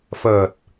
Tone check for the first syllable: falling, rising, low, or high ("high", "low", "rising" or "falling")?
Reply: low